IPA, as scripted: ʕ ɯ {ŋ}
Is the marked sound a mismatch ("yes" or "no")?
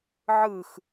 yes